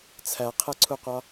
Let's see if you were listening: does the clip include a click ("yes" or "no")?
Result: yes